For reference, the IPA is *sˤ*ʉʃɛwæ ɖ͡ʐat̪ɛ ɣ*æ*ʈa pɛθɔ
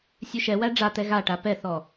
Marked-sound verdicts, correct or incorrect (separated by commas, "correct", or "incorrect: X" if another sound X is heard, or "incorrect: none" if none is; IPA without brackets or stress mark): incorrect: sʲ, incorrect: a